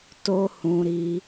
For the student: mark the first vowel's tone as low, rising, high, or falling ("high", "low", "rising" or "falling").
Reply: high